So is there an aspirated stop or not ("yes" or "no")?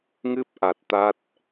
no